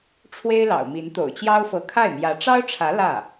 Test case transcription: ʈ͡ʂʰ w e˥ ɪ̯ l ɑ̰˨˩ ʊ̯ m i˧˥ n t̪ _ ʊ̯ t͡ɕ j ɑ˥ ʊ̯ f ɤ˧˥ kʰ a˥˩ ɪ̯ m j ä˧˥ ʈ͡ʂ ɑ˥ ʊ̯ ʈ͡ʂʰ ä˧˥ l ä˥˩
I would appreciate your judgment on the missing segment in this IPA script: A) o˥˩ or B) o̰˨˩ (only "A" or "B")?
B